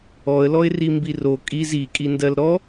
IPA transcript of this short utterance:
ɔ ə̯ l ɔ ɪ̯ r i m b i r o kʼ i z i kʼ i n d ɜ l ɾ ɔ

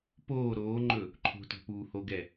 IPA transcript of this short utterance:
p oː ɾ oː ŋ͡ǃ ɵ | ǃʰ o̤ t ɔ̤ p uː h o ɡ ɛ

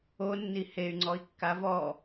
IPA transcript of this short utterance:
o nː i h e y̯ ŋ͡ǀ ɔ i̯ kː a v ɔ

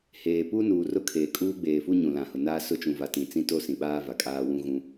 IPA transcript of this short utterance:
h eː˨ p u˦ n uː˨ r ʊ˦ kʰ eː˨ kʼ uː˦ ɡ͡b eː˨ f u˦ ɲ ũ˨ l ã˨ h ʊ˨ n aː˦ s ʊ˦ t͡ʃ ũ˨ v a˨ t ĩ˨ t͡s ĩ˦ t o˦ s ĩ˨ ɓ aː˦ v a˨ kʼ aː˦ w ũ˦ ɣ ũ˦

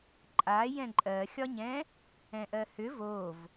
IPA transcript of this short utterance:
ǃʼ a j ɛ̃ ǃʼ ɜ xʲ ɒ ɲ ɛ̃ | ɛ̃ ʔ ɜ h ʏ v o v

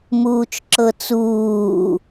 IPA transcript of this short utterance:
m uː t͡ʃ ǁ ɤ t͡s uː

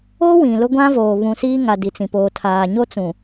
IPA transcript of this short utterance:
o˦ w ĩ˨ l ʊ˦ ɡʷ ã˦ v oː˨ β ũ˨ s iː˦ ŋ a˨ d i˨ t͡s ĩ˨ p oː˨ tʰ aː˨ ɲ o˦ t͡s ũ˨

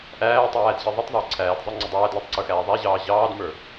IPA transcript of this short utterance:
ʔ æː tˤ æː d ʑ i ðˤ ə tˤ ðˤ ɪː ǀʰ æː d zˤ ə˞ ŋ͡ǀ ɪ dˤ æː d l æ tˤ ǀ ə˞ x æː ðˤ æ ʑ ɑː ʑ ɑː d m ə˞

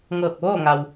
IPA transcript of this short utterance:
ŋ ɤː˧˩ k̚ ʋ oː˥˨ ŋ a˩ w

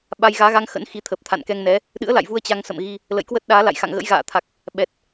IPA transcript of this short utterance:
ɓ a˧ j ɣ aː˨˦ ɣ a˧ ŋ x ə̰˧˥ n x i˨˦ t̪ʰ ə˨˩ p̚ t̪ʰ a̰˧˨ n k ɛ˧ ŋ n ɛ˨˦ | ɗ ɨ̰˧˥ ə̯ l a̰˧˨ j v u˧ ə̯ t͡ɕ a˧ ŋ s ə̰˧˨ m ɣ i˧ | l ə̰˧˨ j k w ə˦˥ t̚ ɗ aː˨˦ l a̰˧˨ j x a̰˧˨ ŋ ɣ ə̰˧˥ j ɣ a̰ː˧˨ t̪ʰ a˨˩ k̚ | ɓ ɛ˨˩ t̚

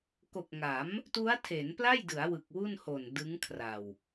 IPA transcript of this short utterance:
k o˨˩ k̚ ŋ a˩˦ m | t u˦˥ a̯ tʰ e˩˦ n p l a˥˩ j d ɯ˩˦ a̯ w ɯ˨˩ k̚ w u˥˩ n h o˨˩ n d ɯ˦˥ ŋ kʰ r a˨˩ w

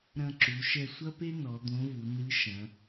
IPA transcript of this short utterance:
ɾ ɐ̃˧ ǁ u˩˧ ʃ ɛ˧ sʷ ɐ˥ p e˥ n ɔ˩˧ d̪ õ˧˥ v u˩˧ n ɨ˧˥ ʃ ɐ̃˩˧

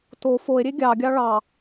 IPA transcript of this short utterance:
t o f o e̯ ɾʲ e ɡʲ ɑ ɡʲ ɑ ɭ ɑ

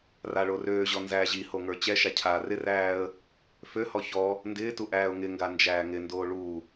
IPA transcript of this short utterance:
r a ɭ o r øː ʑ ɔ n z æː ʑ i h o ŋ ə˞ t͡ɕ ɛ ʃ a cʰ aː r ɪ r æː ə̯ | f ø h ɔ ç ɔ | n d ɪː t u ʔ æː ʊ̯ ŋ ɪ ŋ ɡ a n d͡ʒ æː ŋ ɪ n d oː ɭ u

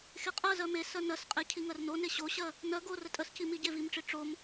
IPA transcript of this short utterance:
x e qʼ ɜ z ɜ m e s ɜ n ɜ s qʼ e cʰ i ŋ ɜ r n o n e ɕ o ɕ ɜ | n ɜ ɡ o r ə tʼ ə s c i m i ɟ e v i m ʈ͡ʂ i ʈ͡ʂ o m

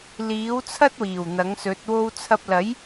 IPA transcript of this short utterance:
l iː˨˥ w t͡sʰ ɐ˥ t̚ w iː˨˩ w n̪ ɐ˨˥ ŋ s ɵ˨˥ t̚ w o˧ w t͡sʰ ɐ˧ p̚ l ɐ˨˥ j

